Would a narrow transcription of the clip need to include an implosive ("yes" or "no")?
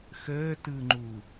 no